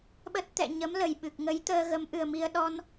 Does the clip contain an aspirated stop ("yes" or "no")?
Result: no